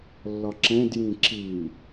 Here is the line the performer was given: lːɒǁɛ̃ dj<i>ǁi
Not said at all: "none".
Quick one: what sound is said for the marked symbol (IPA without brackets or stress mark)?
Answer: ĩ